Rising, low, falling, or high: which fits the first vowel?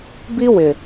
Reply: high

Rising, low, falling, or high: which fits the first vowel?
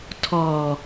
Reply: low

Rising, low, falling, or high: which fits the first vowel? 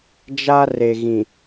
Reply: high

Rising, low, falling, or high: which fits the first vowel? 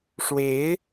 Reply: rising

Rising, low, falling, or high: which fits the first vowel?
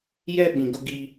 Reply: high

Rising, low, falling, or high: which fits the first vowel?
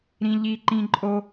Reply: high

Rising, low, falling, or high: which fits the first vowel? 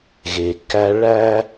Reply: low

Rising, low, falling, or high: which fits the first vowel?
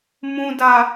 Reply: low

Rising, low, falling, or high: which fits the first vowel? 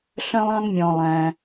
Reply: high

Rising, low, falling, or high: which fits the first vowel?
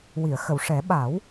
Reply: low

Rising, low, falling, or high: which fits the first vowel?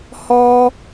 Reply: high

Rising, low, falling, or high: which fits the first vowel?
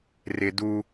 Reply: low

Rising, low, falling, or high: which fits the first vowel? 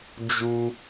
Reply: high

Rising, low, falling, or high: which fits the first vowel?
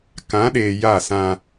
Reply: rising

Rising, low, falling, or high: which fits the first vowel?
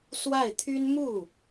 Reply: falling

